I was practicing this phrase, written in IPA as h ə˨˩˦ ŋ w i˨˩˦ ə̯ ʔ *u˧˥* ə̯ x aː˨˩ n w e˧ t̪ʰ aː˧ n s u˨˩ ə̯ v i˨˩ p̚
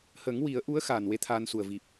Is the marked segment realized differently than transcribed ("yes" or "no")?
no